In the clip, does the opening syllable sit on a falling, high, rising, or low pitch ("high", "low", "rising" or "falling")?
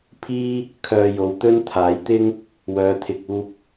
high